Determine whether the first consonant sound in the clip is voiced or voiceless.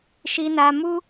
voiceless